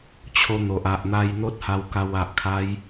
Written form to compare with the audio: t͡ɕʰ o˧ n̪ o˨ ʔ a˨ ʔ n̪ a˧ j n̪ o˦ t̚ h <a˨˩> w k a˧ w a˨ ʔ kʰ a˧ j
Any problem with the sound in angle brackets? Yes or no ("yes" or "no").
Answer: yes